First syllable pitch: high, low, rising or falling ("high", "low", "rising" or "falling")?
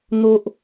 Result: high